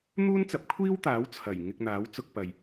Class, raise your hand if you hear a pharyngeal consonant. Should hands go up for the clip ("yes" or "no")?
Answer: no